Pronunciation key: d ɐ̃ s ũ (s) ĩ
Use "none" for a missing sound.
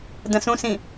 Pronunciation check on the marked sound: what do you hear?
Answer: s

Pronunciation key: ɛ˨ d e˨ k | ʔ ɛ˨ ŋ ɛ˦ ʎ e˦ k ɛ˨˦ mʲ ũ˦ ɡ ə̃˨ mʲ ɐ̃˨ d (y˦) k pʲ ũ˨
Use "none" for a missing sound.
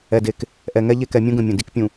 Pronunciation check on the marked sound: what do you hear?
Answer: i˦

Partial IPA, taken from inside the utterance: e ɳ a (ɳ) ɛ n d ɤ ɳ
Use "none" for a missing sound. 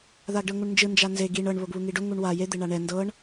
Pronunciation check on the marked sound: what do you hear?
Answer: ɳ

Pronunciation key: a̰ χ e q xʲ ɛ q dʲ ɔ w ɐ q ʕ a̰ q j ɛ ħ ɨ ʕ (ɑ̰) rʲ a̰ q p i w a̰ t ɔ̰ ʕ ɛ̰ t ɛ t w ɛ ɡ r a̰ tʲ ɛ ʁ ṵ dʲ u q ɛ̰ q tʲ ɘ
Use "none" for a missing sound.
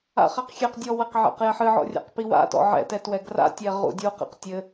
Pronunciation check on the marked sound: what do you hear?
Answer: ɔ̰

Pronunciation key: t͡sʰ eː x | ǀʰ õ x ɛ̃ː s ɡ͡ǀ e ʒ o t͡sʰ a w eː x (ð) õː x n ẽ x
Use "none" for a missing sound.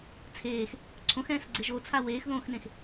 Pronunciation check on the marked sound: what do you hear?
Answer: ð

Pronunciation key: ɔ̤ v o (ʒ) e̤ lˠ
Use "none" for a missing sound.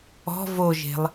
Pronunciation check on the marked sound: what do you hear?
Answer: ʒ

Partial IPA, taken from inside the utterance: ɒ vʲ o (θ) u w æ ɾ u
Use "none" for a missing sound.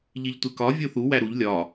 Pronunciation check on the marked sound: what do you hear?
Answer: θ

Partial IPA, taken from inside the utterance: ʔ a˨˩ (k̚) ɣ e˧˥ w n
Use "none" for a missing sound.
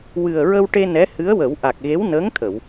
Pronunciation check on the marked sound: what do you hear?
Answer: k̚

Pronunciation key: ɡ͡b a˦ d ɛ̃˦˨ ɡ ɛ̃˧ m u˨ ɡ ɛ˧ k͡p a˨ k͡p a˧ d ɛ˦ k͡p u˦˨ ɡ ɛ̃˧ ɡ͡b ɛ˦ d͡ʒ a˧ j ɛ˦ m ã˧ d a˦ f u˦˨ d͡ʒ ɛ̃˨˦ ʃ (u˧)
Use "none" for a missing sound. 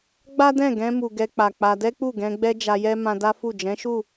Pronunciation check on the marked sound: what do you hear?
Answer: u˦˨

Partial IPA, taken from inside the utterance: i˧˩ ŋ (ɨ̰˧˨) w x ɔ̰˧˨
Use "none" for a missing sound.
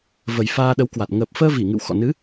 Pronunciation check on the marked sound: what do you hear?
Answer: ɨ̰˧˨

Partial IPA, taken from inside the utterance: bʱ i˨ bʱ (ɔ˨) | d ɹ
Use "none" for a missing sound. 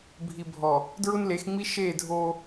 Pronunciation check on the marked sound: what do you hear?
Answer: ɔ˨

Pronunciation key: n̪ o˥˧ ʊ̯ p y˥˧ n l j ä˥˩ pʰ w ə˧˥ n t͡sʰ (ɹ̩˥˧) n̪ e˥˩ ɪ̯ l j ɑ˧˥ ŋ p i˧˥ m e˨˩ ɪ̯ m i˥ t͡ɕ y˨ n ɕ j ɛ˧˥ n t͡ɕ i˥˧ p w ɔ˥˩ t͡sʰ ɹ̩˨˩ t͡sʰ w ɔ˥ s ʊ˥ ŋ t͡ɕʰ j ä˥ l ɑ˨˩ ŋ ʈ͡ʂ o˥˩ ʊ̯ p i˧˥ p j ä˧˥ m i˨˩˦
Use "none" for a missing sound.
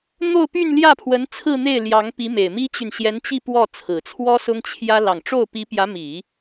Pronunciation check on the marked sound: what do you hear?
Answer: ɹ̩˥˧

